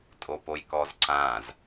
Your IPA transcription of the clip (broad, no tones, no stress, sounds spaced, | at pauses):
tʼ o p o j k ɔ z ǀ ã z